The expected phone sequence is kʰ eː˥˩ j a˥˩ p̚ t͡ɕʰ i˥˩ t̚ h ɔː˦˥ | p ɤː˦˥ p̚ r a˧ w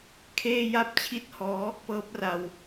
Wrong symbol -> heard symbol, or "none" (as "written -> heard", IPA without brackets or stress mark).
none